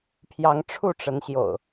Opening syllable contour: rising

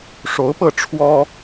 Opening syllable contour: rising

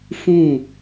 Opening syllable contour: falling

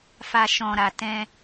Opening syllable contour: low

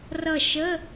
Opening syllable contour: falling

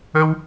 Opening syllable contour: high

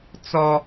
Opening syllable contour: high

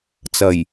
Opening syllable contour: low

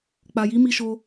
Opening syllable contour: low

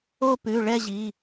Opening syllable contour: falling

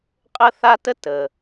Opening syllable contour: high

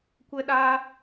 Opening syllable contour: high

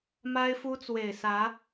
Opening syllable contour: high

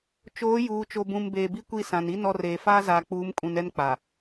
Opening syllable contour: rising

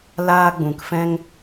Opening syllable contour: high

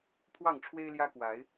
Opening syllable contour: falling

